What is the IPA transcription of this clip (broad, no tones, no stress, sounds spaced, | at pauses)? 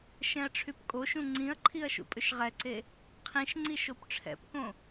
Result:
ʃ ɛ̃ ɐ̯ ʈ͡ʂʰ y p kʼ o ʃ ũ ŋ͡ǀ ĩ ɐ̯ ǃʰ i ɐ̯ ʃ ṵ pʼ ʏ ʃ ʁ ɛ ǀ e | qʰ ĩ ʃ ŋ͡ǀ i ʃ o p ʈ͡ʂʰ ɛ̰ p k õ